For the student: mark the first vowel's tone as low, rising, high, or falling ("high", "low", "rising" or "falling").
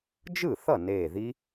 falling